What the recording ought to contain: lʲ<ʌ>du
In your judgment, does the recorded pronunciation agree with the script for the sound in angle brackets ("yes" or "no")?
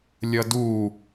yes